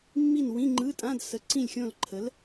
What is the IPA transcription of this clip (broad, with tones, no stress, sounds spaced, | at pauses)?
mː i˦˨ n w ĩ˧˥˧ ŋ͡ǃ ɯ˧˥˧ tʼ ã˧˥˧ d s ə˨˥ ǀ ĩ˦˨ lʲ xʲ õ˦˨ l ǃʰ ə˨˥ l